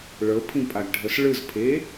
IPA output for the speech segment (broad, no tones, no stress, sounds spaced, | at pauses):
ɭ ɤ pʰ ĩ pʼ a ɡ ɖʱ ɤ s ɭ ɯ z pʰ e